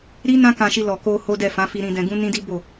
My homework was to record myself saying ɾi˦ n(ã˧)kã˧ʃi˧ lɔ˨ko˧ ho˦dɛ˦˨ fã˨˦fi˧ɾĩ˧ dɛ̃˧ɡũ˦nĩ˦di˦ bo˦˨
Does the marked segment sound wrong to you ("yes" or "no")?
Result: yes